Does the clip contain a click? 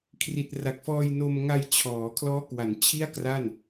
no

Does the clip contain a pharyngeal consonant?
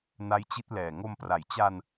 no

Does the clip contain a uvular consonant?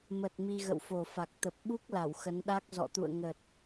no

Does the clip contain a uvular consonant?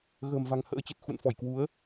no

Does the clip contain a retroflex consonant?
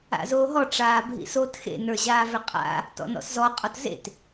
yes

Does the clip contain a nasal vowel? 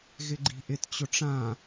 yes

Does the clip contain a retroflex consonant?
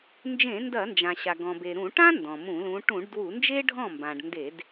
yes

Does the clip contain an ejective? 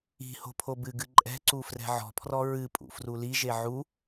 yes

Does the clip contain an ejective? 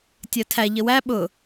no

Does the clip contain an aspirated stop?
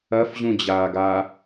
no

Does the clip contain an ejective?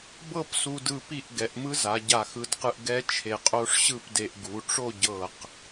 yes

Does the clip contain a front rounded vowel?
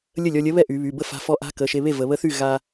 yes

